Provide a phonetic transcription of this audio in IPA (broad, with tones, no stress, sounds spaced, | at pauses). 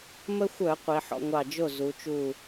m ə˧ xʷ œ˧˩˧ qʷ i˩˧ ħ ɔ̰˧ ŋʷ ɑ˧˩ d͡ʒ o˥˩ z u˩˧ t͡ʃ u˧˩